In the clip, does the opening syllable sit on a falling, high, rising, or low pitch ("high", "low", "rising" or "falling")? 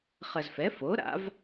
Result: low